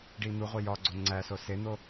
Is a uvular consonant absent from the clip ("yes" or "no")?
no